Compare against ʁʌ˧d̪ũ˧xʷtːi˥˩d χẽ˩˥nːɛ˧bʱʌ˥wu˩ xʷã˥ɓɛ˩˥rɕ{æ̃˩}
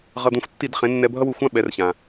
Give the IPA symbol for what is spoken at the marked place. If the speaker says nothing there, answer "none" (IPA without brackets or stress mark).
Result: ã˩